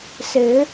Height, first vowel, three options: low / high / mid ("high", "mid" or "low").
mid